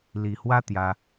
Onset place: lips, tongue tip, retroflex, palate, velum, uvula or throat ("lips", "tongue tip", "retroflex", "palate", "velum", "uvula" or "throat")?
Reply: tongue tip